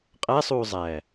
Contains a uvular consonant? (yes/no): yes